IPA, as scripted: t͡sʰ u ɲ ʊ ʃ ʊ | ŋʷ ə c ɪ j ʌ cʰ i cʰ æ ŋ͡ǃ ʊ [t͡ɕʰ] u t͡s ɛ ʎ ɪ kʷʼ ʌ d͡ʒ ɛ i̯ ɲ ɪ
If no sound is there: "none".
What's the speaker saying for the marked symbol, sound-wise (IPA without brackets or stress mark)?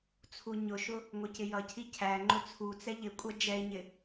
t͡sʰ